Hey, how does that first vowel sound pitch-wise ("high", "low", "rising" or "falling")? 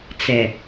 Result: low